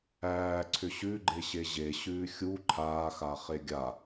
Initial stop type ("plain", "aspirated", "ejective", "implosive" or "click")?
click